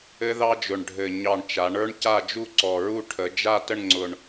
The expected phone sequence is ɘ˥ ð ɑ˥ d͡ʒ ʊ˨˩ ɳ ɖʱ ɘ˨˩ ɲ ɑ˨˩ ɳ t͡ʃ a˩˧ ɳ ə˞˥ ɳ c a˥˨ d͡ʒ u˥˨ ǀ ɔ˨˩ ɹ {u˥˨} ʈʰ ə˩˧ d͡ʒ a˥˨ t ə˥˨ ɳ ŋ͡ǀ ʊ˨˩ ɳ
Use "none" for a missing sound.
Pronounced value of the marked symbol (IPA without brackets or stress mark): u˥˨